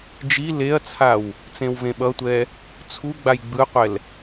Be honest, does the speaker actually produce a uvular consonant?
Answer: yes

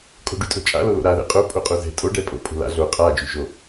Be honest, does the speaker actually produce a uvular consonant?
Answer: yes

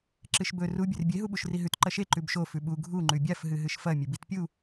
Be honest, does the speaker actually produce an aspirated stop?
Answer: no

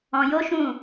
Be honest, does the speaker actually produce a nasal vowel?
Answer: yes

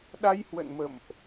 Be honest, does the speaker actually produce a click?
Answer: no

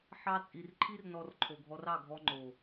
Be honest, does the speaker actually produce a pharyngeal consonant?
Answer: yes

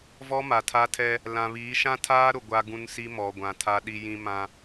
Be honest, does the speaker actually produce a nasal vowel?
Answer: yes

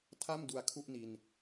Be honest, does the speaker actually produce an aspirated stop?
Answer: yes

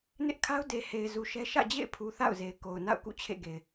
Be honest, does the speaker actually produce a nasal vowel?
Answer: no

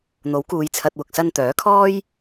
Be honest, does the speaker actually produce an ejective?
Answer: no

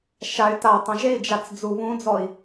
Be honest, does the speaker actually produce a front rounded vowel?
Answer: yes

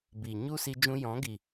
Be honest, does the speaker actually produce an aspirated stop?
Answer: no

